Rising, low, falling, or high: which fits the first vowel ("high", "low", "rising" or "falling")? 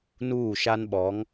falling